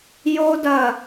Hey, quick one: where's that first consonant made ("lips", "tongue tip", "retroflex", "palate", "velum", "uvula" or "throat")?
palate